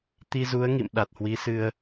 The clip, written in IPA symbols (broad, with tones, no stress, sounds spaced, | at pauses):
t̪ i˧ z u˨˦ ə̯ ŋ ḭ˧˨ m ɗ a˨˩ t̚ h w i˨˦ s ɨ˧ ə̯